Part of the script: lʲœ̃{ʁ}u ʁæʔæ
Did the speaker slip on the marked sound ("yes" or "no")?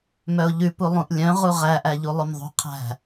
no